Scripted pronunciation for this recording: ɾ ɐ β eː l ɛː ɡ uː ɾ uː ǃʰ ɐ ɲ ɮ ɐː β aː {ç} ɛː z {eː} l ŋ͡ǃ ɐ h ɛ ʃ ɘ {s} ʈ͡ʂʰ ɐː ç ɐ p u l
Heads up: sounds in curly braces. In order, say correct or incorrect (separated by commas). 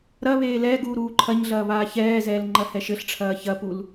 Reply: correct, incorrect, incorrect